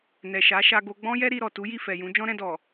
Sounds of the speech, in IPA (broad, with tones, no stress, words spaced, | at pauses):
nɛ˨ʃa˨˦ ʃa˧ɡo˧ ɡ͡bɔ̃˦jɛ˦ ɾi˧ ɾɔ˨tu˨˦ji˦˨ fɛ˨jũ˨˦ d͡ʒɔ̃˦ɾɛ̃˧dɔ˨